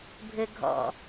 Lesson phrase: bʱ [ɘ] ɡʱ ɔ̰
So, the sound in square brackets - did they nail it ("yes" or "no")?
yes